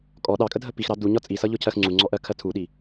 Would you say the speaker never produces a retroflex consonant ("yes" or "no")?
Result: yes